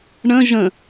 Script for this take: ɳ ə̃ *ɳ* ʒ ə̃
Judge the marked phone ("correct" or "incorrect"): incorrect